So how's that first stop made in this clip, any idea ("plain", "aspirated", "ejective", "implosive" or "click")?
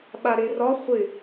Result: implosive